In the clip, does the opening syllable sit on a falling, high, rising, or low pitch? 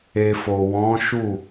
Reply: low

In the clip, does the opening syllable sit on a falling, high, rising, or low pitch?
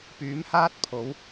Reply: rising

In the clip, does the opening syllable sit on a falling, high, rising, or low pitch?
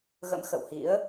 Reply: rising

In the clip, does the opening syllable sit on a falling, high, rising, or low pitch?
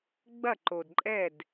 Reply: falling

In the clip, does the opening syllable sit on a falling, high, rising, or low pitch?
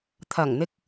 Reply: low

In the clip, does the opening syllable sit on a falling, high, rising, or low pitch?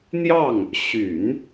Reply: falling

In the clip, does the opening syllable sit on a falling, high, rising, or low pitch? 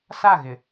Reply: falling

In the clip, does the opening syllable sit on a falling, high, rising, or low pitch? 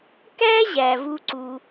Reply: high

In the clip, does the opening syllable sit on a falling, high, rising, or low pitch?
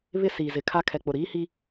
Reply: high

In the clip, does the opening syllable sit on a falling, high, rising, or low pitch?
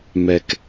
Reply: low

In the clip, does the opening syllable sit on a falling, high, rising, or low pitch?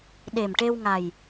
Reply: low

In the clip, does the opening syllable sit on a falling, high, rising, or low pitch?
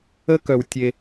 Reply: high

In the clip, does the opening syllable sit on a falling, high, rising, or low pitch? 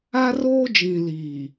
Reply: high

